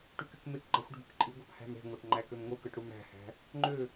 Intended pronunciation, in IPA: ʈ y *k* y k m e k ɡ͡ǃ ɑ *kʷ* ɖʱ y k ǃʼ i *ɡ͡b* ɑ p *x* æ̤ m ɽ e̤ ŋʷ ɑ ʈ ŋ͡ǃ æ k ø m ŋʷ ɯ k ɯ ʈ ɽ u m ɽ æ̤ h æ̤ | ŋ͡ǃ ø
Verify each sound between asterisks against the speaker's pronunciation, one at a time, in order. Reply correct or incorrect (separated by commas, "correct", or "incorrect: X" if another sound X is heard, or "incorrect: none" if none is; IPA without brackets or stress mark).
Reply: correct, incorrect: xʷ, incorrect: ɡʷ, incorrect: h